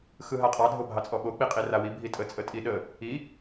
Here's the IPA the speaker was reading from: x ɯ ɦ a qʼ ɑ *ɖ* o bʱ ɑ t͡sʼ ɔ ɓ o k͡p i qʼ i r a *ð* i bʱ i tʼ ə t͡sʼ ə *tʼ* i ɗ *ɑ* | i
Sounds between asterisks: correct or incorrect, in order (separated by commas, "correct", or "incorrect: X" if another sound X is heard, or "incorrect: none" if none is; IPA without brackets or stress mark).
incorrect: dʱ, incorrect: w, correct, incorrect: ə